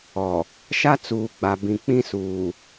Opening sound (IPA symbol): ɔ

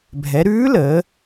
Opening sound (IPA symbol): bʱ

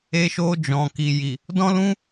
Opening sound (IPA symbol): e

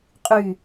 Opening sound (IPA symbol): qʼ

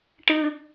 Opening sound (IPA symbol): ʈ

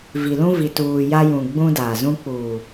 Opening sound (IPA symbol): v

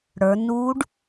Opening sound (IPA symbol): ɽ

